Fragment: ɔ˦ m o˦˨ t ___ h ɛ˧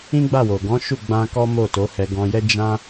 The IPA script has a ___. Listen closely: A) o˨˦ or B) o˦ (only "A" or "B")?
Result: A